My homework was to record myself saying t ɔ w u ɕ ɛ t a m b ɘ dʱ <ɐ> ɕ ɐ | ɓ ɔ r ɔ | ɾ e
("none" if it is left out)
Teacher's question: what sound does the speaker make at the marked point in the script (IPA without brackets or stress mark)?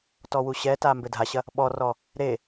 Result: a